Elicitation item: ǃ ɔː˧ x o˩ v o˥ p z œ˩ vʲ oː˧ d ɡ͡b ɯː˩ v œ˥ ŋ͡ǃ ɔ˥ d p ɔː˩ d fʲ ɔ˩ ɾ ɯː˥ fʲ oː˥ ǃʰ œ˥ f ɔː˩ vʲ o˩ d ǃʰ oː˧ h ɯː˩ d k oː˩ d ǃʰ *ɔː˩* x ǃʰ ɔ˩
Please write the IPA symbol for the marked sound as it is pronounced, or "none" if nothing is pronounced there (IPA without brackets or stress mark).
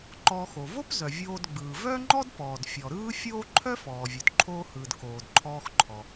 ɔː˧